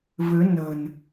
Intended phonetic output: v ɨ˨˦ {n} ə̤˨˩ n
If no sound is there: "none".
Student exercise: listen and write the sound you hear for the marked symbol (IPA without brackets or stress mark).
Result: n